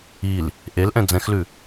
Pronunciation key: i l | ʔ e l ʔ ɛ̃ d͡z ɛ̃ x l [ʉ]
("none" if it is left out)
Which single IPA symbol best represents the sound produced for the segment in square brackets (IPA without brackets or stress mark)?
ʉ